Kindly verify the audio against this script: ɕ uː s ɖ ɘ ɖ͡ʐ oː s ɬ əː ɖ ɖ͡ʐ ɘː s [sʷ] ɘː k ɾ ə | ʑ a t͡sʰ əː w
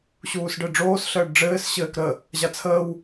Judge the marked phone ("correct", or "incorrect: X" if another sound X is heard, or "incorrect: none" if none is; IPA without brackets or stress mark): incorrect: ɕ